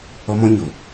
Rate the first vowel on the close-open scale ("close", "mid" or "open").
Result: mid